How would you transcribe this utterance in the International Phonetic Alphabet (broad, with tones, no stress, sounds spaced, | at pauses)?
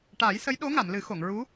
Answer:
ʈ aː˨˩˦ j s ə˧˥ j ɗ o˧˥ ŋ a˨˩˨ m l ɨ˨˩˦ x o˨˩˨ ŋ ɹ u˧˥